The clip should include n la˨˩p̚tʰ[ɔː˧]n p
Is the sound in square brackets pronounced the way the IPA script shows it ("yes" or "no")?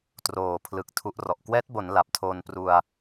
no